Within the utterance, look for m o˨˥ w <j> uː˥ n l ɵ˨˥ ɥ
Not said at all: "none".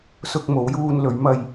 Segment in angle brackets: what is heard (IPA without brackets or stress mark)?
j